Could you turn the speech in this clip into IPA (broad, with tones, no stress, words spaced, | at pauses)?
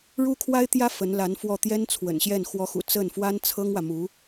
ɻu˥kʰwa˥ɪ̯t̪jä˥ fə˧˥nla˧˥nfwɔ˥˩ t̪jɛ˥nt͡sʰwə̰˨˩nɕjɛ˥˩n xwɔ˧˥xṵ˨˩ t͡sə˥˩nfwa˥n t͡sʰɤ˥ŋwä˨mu˧˥